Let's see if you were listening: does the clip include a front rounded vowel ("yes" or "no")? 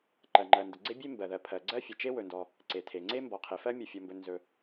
no